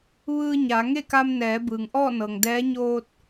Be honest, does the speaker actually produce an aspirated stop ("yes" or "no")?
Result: no